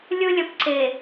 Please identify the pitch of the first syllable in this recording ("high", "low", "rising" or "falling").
high